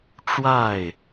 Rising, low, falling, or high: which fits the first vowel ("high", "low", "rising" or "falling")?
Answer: falling